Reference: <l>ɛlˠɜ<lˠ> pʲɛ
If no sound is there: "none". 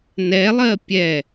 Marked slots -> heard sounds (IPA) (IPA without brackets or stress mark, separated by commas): n, none